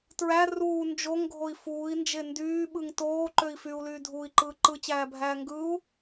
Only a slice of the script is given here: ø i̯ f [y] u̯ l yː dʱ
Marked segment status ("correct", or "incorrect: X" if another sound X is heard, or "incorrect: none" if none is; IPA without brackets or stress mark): correct